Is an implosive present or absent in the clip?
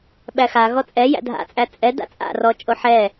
present